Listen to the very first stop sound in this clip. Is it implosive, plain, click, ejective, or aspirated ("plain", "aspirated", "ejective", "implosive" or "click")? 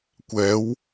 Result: plain